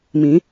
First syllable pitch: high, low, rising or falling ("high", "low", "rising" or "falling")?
rising